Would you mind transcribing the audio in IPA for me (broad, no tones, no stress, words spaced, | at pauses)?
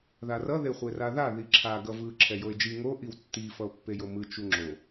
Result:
ðarʌ ðeχʷeraða ðiǁʰa ɡʌvɯ ǁʰɛjoe̯d͡ʒi ŋo ʔiwtːi fʌo̯pːejomɯ t͡ʃuŋ͡ǁo